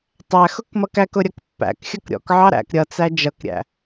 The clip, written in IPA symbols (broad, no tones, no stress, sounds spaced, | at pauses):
tˤ æ x ʊ k m ʌ k æ k ʊ ɾʲ ʌ k pː æ̰ k xʲ ʌ k ɾʲ ɔ̰ k ʕ ɑ ɾ æ̰ k ɾʲ ʌ t͡s æ d͡ʒ ʌ k ɾʲ æ̰